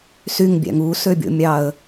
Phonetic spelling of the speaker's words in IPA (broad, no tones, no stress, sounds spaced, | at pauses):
s y ŋ bʲ æ̰ ŋ u s ø bʲ o̰ mʲ ɑ ə̯